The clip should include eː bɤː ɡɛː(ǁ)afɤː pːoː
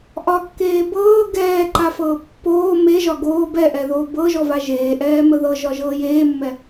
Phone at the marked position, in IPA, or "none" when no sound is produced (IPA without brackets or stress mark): ǃ